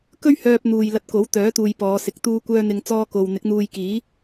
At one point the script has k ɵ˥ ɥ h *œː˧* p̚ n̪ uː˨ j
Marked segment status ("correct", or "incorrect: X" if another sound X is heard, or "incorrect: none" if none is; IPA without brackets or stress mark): correct